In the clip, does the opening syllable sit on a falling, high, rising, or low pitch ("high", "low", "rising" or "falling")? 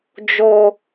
low